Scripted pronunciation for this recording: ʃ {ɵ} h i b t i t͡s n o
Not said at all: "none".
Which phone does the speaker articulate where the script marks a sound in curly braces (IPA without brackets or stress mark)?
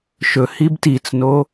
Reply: ɵ